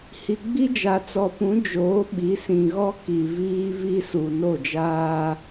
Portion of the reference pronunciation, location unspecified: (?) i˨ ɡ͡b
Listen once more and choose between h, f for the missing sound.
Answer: h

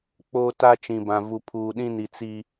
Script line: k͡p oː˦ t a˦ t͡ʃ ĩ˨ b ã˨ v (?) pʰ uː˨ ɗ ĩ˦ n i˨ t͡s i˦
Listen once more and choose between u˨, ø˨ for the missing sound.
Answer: u˨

